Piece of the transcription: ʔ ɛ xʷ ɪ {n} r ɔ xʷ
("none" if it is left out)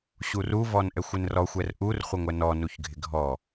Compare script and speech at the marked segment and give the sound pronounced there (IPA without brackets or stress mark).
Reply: n